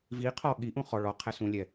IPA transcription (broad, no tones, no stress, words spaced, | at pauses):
vi qʰɔ ɠiʔũ χɔ ɭɔ qʰɛsũlʲɛ